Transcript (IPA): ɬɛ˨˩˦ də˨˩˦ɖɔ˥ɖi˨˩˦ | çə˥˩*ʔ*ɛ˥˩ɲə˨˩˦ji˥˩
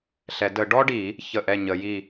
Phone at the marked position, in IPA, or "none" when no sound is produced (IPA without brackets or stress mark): ʔ